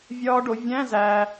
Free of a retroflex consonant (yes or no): no